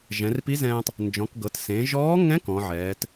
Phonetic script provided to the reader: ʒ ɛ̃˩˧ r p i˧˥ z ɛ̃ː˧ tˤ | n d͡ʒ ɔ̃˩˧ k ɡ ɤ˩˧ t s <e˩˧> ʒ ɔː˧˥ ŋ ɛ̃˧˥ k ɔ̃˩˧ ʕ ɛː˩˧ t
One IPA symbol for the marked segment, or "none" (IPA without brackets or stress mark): ẽ˩˧